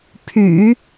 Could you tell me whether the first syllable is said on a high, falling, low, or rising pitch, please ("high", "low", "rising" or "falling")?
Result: low